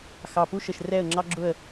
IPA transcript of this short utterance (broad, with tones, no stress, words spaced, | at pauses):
xɑ˨pu˦ʃə˨ʃ rɛ˦˨ə̯ ŋ͡ǁɑ˦ɡ͡ǁʊ˦˨ə̯